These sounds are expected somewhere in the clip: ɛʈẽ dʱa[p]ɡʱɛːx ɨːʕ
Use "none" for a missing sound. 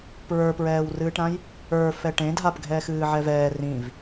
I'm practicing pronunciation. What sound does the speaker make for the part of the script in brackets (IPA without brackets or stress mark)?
p